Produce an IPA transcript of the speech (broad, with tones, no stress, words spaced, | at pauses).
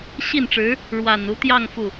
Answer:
ɕi˥˩nʈ͡ʂɻ̩˧˥ | ɻwa˨˩nu˧˥t̪jɑ˥˧ŋ fu˥˩